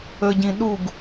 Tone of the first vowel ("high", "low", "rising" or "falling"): low